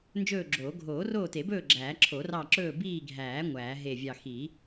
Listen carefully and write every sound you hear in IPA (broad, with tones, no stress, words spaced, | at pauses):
nd͡ʒɵː˦˨ɡ͡ǁoː˨˩˦ ɡʱoː˨˩˦roː˦˨te˨˩˦bɵː˦˨ ɡ͡ǁæː˨˩˦ǁʰo˨˩˦rɑ˦˨ ǁɵː˦˨biː˦˨ɡʱæː˨˩˦ ŋʷæː˨˩˦ɦe˦˨vʲɑ˦˨ xi˨˩˦